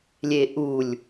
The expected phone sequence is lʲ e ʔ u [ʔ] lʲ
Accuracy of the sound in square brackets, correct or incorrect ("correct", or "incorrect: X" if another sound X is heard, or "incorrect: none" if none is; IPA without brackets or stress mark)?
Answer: incorrect: none